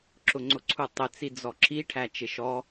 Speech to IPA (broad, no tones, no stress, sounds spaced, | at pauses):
ǁ ʊ ŋ͡ǀ ʊ ǀʰ u tˤ ɪ t͡s i d͡z ɔ ǁ i ʈʰ æ t͡ʃ ɪ ʃ ɔ